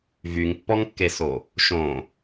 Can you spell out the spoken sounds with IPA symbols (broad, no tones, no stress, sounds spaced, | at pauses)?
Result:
v y ŋ pː ɔ ŋ kː e s o | ʃ õ